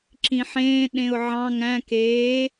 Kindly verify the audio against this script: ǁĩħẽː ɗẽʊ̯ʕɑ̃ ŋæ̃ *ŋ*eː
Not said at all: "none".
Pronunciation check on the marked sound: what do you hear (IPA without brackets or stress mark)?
k